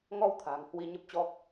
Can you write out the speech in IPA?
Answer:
ŋ ɔ˧ w t̪ʰ a̤˨˩ ŋ h w i˧ ɲ ə˦˥ p̚ t͡ɕ ɔ˦˥ k̚

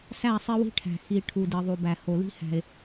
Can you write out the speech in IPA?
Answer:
s æ˦˨ sˤ e˦ w i̤˦ ʈʰ æ̤˨ x i˨ ʈʰ u˨ d i˨ ðˤ u˨ b æ˨ h o˨ l i̤˦ h æ̤˨ e̯

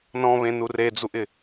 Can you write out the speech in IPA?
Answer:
n ɔ̃ β ẽ n u r e d͡z u ʔ ɪ

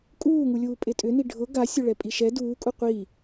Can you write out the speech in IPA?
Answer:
kʼ uː ŋ u lʲ uː pʼ e tʼ ʏ n i ɖʱ ʊ ɡ a sʲ ʊ ɭ ɛ pʼ i ʃ ɛ d uː kʼ u qʷ i

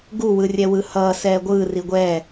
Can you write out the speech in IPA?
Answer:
ɡ u w ɯ rʲ ɛ w ɯ h ʌː s ɛː ɡʷ ɯː r i ɡʷ ɛː

